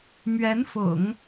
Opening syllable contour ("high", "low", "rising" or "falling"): rising